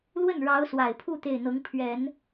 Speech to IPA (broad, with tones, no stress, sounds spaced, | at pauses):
l w ə˥˩ n ɻ ɑ˧˥ ʊ̯ s w a˨˩ ɪ̯ pʰ u˥˧ t̪ e˥˩ ɪ̯ n̪ ɤ˧˥ ŋ pʰ ɥ ɛ˨˩˦ n